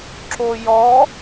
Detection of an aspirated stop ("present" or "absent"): absent